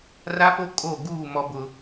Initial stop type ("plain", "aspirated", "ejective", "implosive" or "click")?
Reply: ejective